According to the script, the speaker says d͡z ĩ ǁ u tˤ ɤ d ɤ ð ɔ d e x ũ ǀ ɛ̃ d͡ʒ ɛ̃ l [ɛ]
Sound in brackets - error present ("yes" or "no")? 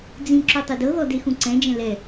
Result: no